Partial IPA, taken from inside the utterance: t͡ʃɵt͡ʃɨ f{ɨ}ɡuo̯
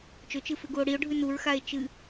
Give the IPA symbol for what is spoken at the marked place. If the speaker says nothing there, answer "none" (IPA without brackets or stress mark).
ʉ